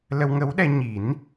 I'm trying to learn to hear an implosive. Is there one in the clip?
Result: yes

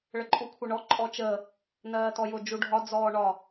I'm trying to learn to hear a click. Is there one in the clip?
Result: yes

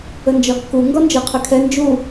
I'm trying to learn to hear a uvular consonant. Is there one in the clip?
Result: yes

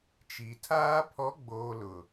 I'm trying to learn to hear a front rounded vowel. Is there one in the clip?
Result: no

